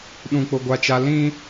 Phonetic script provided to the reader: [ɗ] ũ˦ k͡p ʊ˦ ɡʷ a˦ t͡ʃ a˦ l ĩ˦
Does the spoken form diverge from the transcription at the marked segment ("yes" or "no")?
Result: no